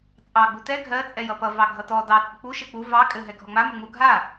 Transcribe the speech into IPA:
t͡sʼɑ ɡ͡butɛ ɡʱɜ t͡sʼɛjʌpʌ vɑɡʱʌtɔ dɑ t͡sʼək͡pu ʃek͡pu vɑ kʼɘ ɦɛɡʱɔŋ͡ma məŋ͡mu ɡʱa

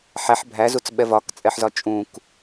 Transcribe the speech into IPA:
ħæħ bʱæzut͡sɓɛ vɒkt͡sʼɛħzɒ t͡ʃʼũk

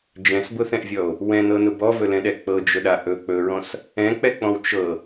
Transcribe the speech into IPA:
d͡ʒɛ̃sbʊθɛ̃ʔvʲɔo̯ | wɛ̃nɤnʊ bɔvɵlɛ̃ɗɛ k͡pɤd͡ʒʊɗa ʔɵ k͡pɵɹɔ̃s | ɛ̃k͡pɛk͡pɔ̃w t͡ʃɤ

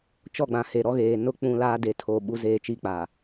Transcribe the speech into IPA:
t͡ʃɔ˦˨ɡ͡bã˨he˨ ɾɔ˦ɣeː˨ nʊ˦ k͡pũ˦laː˦ de˨tʰo˨ ɓu˦ zeː˦˨t͡ʃi˦k͡pa˨

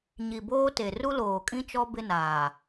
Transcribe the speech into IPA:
ɲi˨boː˦te˨ ru˦loː˨kʼĩ˦t͡ʃɔ˦ bɪ˦naː˨

